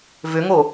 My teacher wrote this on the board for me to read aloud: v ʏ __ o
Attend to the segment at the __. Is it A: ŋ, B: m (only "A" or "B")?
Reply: A